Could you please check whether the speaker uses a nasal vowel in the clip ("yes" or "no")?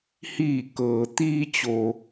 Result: no